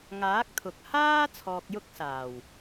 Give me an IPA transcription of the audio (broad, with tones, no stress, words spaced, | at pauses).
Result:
ŋaː˨˥k̚t̪ʰʊ˨k̚haː˥ t͡sʰɔː˧k̚ jʊ˥k̚saː˨˩w